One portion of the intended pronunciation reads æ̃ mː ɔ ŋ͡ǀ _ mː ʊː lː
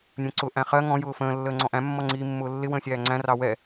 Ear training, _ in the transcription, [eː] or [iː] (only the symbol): iː